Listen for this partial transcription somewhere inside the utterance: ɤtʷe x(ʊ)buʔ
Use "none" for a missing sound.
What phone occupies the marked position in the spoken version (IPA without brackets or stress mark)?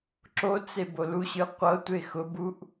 ʊ